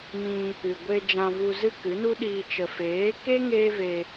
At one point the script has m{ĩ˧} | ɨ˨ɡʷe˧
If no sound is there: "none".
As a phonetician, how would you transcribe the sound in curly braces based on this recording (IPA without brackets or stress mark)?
ĩ˧